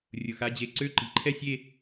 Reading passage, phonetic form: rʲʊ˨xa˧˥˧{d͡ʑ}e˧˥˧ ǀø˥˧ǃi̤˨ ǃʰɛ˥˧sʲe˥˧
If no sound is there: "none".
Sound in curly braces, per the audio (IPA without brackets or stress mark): d͡ʑ